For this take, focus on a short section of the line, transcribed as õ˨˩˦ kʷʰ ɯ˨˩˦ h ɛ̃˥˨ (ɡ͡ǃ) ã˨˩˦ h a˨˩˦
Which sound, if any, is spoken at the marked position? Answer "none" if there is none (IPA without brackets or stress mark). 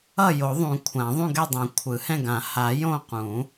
ɡ